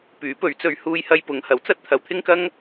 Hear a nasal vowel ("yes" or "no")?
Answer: no